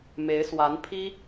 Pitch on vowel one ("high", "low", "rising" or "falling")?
rising